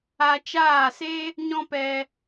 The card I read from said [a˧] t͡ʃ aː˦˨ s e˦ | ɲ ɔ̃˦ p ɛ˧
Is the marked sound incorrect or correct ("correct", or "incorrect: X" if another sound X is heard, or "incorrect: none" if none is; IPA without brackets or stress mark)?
correct